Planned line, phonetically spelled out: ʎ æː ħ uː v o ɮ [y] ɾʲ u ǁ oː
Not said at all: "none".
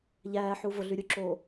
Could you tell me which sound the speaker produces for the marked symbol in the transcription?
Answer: y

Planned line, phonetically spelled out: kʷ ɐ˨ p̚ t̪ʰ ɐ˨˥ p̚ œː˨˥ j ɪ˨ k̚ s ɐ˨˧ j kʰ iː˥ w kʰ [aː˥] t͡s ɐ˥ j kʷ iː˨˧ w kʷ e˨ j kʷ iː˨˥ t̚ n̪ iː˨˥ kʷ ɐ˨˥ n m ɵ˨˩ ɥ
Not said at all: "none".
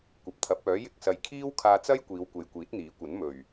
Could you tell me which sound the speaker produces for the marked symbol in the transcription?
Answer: aː˧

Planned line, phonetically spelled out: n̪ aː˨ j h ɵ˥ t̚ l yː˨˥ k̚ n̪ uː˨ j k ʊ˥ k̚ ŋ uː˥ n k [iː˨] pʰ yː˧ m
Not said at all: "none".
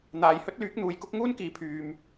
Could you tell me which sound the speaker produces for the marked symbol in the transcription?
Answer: iː˨˧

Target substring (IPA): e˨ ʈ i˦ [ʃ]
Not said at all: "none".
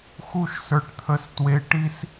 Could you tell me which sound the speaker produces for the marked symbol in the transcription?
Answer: s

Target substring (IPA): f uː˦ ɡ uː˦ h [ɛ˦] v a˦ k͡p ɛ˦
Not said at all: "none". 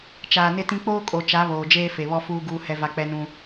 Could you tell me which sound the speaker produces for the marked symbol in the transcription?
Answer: ɛ˦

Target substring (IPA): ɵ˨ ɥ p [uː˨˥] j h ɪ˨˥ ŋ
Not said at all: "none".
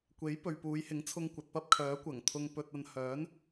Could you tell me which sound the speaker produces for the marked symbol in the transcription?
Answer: uː˨˧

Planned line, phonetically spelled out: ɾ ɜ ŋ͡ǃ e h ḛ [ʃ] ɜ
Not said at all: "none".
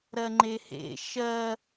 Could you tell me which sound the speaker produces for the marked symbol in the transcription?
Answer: ʃ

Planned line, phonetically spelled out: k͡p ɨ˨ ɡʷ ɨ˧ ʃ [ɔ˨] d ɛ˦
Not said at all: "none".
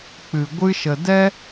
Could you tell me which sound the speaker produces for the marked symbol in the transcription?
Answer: ə˨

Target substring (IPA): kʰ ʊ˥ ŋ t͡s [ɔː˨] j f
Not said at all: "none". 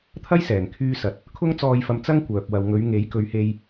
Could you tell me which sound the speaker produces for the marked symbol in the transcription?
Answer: ɔː˧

